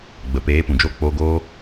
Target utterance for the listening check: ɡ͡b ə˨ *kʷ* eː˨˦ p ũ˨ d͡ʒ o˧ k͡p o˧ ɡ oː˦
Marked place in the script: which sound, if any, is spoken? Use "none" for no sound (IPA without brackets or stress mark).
p